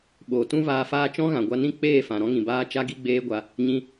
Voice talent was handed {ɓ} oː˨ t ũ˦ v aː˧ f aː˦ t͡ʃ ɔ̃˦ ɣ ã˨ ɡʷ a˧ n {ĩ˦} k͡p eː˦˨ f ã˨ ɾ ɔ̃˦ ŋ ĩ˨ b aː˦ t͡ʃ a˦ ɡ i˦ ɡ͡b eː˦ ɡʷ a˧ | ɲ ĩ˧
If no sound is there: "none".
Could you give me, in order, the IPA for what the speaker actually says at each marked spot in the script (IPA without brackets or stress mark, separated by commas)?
ɓ, ĩ˦